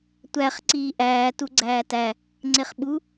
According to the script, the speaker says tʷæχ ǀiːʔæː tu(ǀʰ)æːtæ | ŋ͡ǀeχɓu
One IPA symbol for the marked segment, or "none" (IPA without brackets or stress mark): ɡ͡ǀ